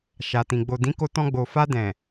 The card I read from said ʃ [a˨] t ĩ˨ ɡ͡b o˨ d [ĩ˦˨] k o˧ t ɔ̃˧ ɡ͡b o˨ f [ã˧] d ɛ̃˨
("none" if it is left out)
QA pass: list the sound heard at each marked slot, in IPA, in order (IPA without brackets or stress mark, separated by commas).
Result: a˨, ĩ˨˦, a˧